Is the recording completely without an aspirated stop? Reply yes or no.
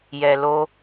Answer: yes